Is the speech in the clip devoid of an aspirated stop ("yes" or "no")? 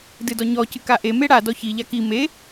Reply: yes